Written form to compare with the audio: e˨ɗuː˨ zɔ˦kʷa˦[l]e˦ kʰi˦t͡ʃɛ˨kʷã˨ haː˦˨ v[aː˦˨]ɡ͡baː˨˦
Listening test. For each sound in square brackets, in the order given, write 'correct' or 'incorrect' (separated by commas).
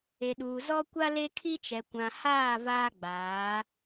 correct, incorrect